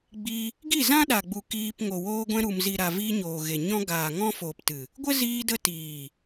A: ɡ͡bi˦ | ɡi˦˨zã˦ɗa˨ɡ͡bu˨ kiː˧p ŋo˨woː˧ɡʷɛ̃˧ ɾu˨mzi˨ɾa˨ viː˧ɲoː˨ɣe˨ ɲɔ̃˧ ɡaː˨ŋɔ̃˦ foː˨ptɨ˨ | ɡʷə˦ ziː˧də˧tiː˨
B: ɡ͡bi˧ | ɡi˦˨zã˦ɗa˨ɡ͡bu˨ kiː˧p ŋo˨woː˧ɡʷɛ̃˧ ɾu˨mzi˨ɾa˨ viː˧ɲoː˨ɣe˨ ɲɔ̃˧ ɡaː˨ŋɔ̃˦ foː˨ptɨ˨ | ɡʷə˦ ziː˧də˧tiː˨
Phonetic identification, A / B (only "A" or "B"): B